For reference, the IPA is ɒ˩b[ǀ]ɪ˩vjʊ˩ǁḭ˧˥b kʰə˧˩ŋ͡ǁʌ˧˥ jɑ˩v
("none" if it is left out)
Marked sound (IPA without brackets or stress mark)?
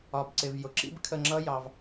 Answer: ǀ